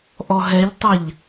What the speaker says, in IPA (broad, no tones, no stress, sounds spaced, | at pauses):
ʔ ɔ ɦ ɛ ʎ tˤ a ʎ